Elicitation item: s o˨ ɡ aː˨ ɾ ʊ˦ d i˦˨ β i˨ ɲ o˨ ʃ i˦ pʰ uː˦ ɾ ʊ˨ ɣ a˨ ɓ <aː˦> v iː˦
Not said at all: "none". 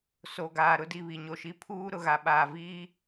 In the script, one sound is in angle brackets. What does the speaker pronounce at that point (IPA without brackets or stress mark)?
aː˨